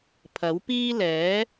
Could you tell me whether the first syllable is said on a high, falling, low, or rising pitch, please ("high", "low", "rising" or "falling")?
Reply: rising